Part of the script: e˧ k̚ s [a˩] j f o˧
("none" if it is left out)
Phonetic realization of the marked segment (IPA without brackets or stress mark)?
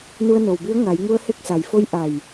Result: a˩